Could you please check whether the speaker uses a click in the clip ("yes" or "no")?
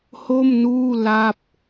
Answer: no